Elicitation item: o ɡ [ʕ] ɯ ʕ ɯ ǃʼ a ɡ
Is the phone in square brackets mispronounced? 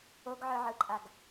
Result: no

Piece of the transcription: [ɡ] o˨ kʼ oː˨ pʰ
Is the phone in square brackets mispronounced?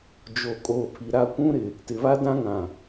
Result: yes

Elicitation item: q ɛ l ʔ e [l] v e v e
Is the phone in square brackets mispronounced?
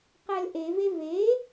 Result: yes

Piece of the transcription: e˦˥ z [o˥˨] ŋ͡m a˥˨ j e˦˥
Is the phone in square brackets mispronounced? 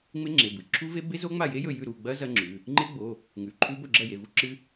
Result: yes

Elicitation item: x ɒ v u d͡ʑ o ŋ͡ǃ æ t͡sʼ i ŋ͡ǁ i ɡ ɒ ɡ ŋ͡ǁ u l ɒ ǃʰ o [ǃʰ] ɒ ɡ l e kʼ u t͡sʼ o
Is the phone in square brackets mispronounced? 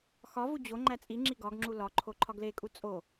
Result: no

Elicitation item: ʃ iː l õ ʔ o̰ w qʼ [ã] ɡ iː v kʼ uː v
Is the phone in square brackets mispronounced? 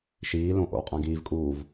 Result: no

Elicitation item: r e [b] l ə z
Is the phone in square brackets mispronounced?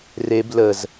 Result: no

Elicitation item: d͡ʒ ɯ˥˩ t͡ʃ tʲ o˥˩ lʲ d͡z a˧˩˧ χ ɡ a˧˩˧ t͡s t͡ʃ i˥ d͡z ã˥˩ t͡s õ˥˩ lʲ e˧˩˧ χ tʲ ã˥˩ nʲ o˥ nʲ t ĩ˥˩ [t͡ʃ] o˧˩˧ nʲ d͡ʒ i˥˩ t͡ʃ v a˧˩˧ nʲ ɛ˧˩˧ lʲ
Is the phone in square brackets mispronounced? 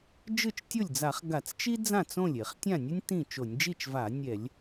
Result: no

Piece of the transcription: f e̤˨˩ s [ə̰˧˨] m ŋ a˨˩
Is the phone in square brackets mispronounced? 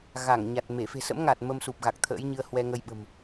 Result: yes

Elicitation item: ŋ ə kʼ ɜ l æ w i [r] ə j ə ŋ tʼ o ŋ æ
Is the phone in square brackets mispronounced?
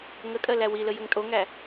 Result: yes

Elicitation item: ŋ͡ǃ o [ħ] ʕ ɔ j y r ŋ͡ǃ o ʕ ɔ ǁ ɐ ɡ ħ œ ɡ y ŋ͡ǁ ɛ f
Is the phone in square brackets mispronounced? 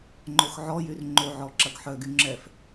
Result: yes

